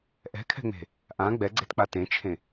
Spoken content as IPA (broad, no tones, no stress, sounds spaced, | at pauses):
ʔ ɛ̤ kʰ ɛ̤ ŋ͡m e̤ | ʔ ã ɡ͡b ɛ ɡ͡ǀ e t k͡p a t ẽ t͡ʃʰ ẽ